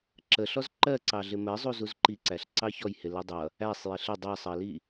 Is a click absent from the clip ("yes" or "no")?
no